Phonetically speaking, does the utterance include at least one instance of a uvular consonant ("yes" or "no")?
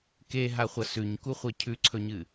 yes